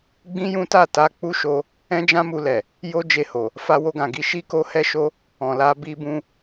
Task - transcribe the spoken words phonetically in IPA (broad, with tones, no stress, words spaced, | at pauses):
ɡ͡bĩ˦jũ˦ta˦˨ ta˧k͡pu˦ʃo˧ | ɛ̃˦d͡ʒã˦mu˧lɛ˨ | jo˦d͡ʒe˧ho˨ | fa˧wo˧ɡã˨ɡi˧ ʃi˦ko˦hɛ˦ʃo˦ | ɔ̃˨la˧ bi˧bũ˧